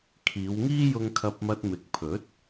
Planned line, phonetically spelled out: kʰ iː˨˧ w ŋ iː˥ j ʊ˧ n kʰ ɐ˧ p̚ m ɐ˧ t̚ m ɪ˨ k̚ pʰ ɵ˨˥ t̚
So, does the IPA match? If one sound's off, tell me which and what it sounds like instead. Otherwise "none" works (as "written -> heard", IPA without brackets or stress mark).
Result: n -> ŋ